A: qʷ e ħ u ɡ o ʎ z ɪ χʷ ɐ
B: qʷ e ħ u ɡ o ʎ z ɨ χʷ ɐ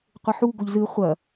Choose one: B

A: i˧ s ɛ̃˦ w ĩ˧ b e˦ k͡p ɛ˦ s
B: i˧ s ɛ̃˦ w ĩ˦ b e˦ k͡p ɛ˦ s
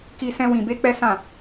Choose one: A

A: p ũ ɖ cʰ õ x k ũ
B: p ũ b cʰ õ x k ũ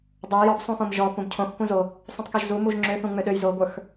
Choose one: B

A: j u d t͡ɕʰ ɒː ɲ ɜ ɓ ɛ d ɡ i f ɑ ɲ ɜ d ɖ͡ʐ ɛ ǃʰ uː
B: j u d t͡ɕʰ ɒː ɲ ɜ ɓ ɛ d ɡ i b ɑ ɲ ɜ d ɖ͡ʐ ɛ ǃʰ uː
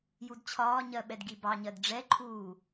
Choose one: B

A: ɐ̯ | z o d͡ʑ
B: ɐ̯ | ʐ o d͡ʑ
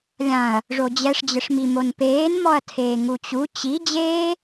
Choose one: B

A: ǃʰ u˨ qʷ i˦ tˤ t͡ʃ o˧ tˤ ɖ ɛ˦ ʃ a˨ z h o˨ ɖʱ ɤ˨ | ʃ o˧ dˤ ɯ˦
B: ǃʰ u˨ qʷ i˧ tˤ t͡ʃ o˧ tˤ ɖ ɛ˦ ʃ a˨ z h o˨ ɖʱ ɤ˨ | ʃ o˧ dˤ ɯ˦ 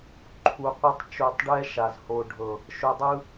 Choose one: B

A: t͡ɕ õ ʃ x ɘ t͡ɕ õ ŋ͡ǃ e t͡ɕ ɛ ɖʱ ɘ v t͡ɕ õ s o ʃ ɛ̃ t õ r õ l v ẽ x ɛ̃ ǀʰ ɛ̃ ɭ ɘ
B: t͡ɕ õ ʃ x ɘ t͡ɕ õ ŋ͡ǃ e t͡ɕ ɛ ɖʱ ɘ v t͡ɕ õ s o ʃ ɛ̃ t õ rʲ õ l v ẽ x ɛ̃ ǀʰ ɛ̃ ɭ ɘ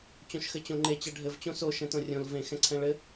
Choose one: B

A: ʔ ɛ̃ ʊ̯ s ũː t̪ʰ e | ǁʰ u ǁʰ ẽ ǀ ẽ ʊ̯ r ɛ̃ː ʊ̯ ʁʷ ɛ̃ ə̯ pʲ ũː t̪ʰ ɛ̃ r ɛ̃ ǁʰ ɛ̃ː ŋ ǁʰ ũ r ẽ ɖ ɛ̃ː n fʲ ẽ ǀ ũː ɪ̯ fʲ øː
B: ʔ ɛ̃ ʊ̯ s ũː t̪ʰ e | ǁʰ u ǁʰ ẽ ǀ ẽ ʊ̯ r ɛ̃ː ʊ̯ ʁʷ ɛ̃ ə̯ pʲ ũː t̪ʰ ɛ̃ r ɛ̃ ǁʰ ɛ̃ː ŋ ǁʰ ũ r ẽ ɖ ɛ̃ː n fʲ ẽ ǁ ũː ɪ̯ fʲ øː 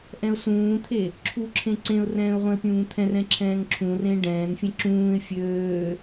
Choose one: B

